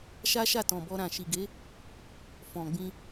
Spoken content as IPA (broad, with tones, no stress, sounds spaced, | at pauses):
ʃ a˦ ʃ a˦˨ t ɔ̃˨ b ɔ˧ ɾ ã˨ ʃ i˨ ɡ e˨˦ | f ɔ̃˨ ɡ͡b ĩ˧